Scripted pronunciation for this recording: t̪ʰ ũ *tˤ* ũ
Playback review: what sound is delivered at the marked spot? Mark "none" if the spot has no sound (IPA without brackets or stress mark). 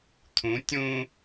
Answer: tʲ